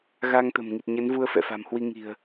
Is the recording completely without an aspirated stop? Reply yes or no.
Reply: yes